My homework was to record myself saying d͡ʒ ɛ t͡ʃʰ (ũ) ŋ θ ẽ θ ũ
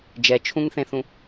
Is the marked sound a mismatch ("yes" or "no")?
no